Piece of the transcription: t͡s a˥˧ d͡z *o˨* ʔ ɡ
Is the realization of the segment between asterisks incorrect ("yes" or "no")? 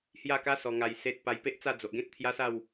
no